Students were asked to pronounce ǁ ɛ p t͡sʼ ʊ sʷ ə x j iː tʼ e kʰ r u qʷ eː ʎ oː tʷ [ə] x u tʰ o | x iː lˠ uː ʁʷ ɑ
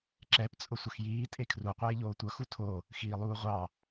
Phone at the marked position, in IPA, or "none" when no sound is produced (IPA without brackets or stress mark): ʌ